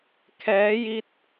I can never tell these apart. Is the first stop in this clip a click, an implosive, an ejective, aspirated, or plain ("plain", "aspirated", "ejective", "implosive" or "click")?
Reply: aspirated